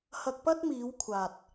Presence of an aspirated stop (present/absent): present